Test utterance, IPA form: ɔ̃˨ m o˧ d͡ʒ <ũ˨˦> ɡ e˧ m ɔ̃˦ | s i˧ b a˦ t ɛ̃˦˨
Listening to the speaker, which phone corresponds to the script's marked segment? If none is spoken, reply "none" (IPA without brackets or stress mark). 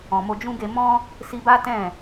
ũ˦